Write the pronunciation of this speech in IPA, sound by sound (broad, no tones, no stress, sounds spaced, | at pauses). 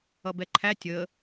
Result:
ʌ b ɛ ǃʰ æ tʲ ə